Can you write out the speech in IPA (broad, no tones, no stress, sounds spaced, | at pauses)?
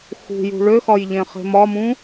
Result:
x ṳ j ṳ ɭ ø x ɒ j ʎ ẽ χ e̤ m ɒ m ũ